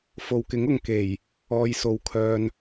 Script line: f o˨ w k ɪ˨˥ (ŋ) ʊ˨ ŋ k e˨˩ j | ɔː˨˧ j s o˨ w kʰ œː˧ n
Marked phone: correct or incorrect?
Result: correct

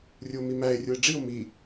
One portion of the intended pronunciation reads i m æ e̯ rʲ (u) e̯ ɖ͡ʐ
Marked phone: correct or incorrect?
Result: correct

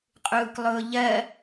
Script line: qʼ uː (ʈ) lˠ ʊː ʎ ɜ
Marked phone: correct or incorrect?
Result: incorrect: k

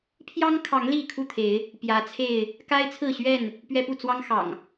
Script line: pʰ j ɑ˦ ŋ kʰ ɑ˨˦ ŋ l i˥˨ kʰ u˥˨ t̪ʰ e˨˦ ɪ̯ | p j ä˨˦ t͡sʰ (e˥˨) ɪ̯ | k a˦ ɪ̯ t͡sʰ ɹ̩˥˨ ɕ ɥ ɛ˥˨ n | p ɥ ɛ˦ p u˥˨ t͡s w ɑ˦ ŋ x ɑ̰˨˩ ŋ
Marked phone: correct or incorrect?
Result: correct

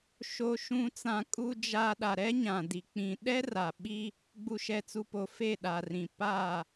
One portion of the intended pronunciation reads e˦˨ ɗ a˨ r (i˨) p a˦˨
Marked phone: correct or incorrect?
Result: incorrect: ĩ˨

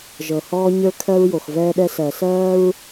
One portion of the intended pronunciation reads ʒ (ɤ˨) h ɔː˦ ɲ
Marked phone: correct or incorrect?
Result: correct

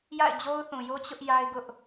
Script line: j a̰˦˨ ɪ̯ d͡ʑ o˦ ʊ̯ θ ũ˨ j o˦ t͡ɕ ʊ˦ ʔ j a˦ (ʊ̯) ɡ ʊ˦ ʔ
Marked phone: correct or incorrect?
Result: incorrect: ɪ̯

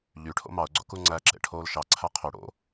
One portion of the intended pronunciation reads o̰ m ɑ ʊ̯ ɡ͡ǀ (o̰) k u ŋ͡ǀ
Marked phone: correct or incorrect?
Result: correct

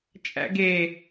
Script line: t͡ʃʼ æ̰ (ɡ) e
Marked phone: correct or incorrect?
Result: correct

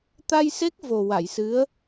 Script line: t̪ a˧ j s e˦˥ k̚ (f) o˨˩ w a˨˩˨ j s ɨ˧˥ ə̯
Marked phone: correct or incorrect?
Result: incorrect: v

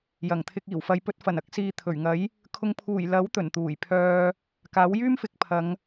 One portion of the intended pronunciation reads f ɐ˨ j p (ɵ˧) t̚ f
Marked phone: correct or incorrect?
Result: correct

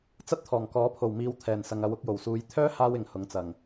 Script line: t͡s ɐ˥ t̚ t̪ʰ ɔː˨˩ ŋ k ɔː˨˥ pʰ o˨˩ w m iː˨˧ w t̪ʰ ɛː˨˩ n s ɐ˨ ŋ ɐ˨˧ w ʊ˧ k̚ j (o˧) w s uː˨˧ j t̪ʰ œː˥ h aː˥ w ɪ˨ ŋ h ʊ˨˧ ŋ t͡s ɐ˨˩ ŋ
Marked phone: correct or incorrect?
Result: incorrect: o˨˩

